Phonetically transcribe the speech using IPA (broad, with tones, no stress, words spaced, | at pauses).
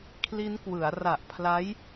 kʰli˦˥nkwɯ˩˦a̯ ra˨˩ʔpʰla˦˥j